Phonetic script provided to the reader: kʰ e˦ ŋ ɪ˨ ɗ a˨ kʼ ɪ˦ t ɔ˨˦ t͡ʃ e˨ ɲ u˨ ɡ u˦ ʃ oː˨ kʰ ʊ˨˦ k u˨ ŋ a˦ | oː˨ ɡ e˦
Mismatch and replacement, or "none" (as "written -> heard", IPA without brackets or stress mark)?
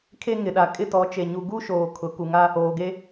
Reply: none